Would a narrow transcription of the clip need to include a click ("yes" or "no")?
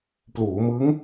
no